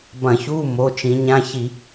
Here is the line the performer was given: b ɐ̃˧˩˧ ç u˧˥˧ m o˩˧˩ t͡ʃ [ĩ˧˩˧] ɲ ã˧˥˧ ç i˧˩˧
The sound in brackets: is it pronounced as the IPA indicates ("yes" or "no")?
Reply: no